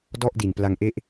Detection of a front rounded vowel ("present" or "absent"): absent